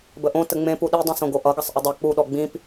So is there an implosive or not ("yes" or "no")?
yes